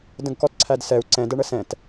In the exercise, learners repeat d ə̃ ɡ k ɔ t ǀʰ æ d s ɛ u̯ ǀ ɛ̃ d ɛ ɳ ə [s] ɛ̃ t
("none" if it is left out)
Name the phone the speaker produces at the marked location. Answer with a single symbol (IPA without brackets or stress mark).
s